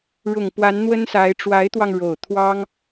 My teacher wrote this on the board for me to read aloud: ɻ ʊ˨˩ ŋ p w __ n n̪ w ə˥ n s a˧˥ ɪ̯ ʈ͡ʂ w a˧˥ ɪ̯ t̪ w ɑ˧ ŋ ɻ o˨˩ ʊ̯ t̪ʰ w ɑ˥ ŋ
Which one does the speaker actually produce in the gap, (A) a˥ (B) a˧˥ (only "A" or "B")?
B